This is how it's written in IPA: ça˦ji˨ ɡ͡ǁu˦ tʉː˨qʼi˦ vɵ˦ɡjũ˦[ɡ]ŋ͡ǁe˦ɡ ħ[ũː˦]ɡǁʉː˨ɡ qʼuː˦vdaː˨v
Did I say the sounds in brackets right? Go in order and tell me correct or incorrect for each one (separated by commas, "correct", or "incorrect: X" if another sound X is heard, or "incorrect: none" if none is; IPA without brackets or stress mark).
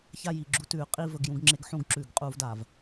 correct, incorrect: ũ˦